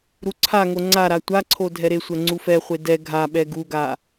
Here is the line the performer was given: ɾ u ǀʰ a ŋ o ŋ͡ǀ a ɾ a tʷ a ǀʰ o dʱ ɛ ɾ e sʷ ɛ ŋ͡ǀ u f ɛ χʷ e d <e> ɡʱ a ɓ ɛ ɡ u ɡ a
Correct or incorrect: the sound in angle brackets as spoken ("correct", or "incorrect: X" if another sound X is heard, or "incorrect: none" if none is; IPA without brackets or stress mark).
incorrect: ɛ